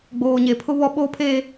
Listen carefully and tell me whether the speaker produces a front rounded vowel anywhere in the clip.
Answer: no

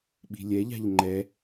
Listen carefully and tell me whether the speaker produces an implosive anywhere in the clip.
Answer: yes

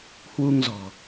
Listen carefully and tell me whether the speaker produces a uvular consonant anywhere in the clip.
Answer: no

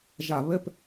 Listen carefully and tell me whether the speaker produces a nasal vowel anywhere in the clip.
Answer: no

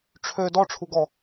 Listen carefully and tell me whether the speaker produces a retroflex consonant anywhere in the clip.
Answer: yes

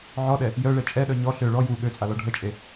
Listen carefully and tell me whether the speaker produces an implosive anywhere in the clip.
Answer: yes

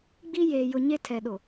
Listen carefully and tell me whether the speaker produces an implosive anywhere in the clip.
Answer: yes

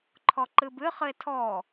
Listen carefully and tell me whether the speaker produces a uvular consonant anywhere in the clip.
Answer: yes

